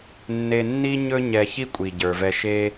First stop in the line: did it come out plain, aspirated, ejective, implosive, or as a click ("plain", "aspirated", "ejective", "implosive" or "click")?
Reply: ejective